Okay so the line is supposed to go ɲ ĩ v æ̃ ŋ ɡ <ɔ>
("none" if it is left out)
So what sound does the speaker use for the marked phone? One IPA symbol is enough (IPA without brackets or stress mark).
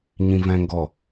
ɔ